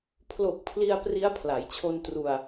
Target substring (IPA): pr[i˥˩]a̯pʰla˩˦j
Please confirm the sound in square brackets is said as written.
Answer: no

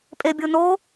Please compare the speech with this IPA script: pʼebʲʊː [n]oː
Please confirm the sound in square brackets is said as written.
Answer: yes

